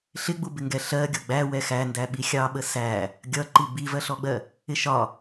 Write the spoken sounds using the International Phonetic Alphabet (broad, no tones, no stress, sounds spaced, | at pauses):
ɬ ɪ ɡ͡b u b ɪ ŋ ɡ ɛ ɬ ɜ ɡʲ ʌ ɡ͡b æ w ɛ x æ n d æ ɓ i xʲ ɑ ɓ ə s æ | ɡʲ ʌ ǃ i b i v ɜ ɬ ɔ ɡ͡b ɜ | ɪ ʃ ɒ